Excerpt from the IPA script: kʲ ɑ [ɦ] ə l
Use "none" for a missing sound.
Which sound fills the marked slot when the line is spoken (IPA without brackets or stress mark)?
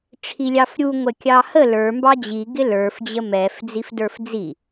h